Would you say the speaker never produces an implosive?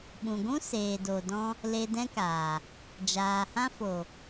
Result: no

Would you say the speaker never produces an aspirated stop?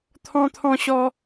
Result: no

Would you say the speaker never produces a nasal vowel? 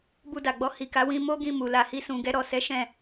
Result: no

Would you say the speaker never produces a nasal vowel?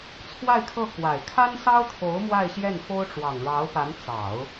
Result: yes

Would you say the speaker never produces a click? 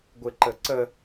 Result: no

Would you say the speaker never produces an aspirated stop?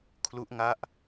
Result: no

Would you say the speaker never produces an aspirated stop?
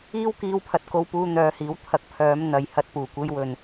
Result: no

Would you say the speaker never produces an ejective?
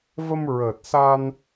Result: yes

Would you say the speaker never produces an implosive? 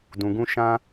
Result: yes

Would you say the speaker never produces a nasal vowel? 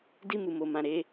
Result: no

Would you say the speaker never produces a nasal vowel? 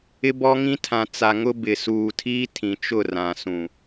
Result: no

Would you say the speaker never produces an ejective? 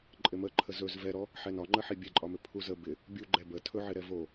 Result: no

